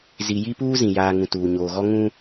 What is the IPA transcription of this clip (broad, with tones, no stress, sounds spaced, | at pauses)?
z i˨ j i˦ p uː˦ z ĩ˨ j aː˨ ŋ ũ˨ t uː˨ ɲ oː˨ ɣ ɔ˦ ŋ ũ˦